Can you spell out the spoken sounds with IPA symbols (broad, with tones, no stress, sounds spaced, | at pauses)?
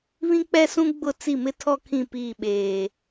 β ĩ˦ k͡p ɛ˦ s ũ˦ ɡ͡b ʊ˦˨ t͡s i˦˨ m ɪ˦ tʰ ɔ˦ kʰ ĩ˦˨ p iː˦˨ ɓ eː˨